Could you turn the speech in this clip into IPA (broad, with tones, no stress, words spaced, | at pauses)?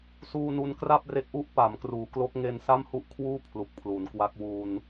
suː˧nu˧n kra˥˩p̚re˦˥k̚ʔu˦˥ʔ pa˩˦mkruː˩˦klo˦˥k̚ ŋe˧nsa˥˩mhu˥˩ʔkʰwuː˥˩ pʰlu˨˩k̚pʰlu˩˦nkwa˦˥k̚ wuː˧n